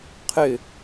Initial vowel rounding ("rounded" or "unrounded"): rounded